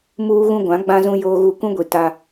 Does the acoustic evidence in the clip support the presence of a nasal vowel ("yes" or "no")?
yes